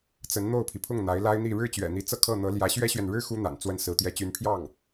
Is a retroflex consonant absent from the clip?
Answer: no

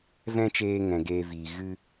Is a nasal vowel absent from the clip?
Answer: no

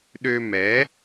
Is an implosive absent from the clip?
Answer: no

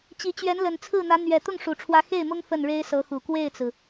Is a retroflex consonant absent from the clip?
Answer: no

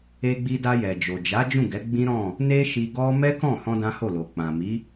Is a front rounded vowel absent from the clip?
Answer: yes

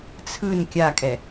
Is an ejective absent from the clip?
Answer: no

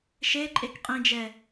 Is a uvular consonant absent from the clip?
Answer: no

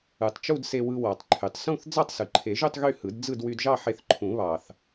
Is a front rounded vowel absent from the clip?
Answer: no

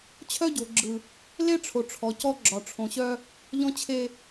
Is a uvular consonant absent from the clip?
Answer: yes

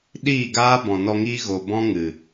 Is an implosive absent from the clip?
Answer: no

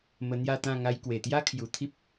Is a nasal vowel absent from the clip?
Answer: no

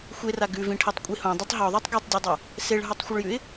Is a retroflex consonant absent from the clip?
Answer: no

